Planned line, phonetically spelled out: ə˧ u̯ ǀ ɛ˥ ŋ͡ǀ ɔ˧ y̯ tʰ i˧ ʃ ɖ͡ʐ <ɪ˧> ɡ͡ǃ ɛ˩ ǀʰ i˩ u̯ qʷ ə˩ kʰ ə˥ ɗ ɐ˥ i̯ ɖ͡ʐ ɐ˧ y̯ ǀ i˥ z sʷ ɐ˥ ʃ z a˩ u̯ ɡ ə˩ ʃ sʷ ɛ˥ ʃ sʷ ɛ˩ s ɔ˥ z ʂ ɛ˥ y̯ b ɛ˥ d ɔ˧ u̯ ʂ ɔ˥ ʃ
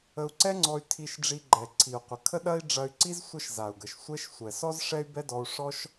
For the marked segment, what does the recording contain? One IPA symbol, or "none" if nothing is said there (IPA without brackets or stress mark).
i˧